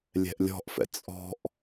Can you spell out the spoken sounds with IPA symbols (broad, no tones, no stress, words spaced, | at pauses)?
lʲɛ̤ʔlʲɔ̤ʔfɛ̰ t͡sʼɔ̤ʔ